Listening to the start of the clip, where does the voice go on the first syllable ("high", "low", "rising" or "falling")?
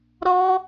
high